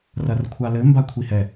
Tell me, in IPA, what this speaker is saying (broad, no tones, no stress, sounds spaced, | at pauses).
r ɐ r kʷʰ a l ɘ m b a kʷʰ i h ɛ